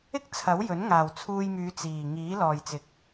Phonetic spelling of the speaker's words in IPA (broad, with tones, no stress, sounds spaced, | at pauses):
ɪ˥ k̚ t͡sʰ ɐ˨˥ w j ɵ˨˥ n ŋ aː˨ w t͡sʰ uː˧ j m yː˨˧ t͡s iː˨ ŋ iː˨˥ l ɔː˨ j t͡s ɪ˨˥ k̚